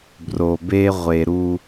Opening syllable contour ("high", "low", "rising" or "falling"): low